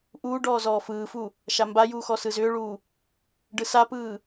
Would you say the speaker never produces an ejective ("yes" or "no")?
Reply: yes